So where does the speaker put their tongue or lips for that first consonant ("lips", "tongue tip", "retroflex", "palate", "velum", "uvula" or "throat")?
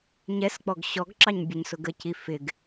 palate